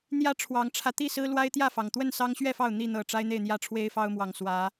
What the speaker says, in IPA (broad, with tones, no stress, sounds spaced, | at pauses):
n̪ j ä˦ ʈ͡ʂʰ w ɑ˨˦ ŋ ʈ͡ʂʰ ä˧ t̪ i˥˨ s ɹ̩˦ l w a˦ ɪ̯ t̪ j ä˥˨ f ɑ˩ ŋ t̪ w ə˥˨ n s ɑ˦ ŋ ɕ ɥ ɛ˥˨ f ɑ˥˨ ʊ̯ n̪ i˥˨ n̪ ɤ˨˩ ʈ͡ʂ a˦ ɪ̯ n̪ e˥˨ ɪ̯ n̪ j ä˦ ʈ͡ʂʰ w e˦ ɪ̯ f ɑ˦ ʊ̯ m w ɑ˨˩ ŋ s w ä˨˦